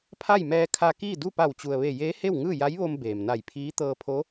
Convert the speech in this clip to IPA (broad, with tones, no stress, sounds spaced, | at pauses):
pʰ a˥˨ j m ɛː˧ kʰ a˧ k iː˥˨ d u˥˨ p a˧˩ w t͡ɕ u˩ ə̯ ʋ e˧˩ j eː˧˥ h e˥˨ w ŋ ɯː˥˨ j a˧˥ j ʋ o˧ m b eː˩ m n a˧˩ j pʰ iː˧˥ t̪ ɤː˧ pʰ o˧˥